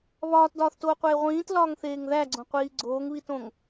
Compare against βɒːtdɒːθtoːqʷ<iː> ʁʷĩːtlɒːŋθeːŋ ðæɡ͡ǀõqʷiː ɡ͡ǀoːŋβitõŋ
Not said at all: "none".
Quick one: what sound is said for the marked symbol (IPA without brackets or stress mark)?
eː